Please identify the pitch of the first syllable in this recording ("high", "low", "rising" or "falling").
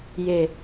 low